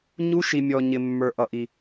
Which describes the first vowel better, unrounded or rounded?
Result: rounded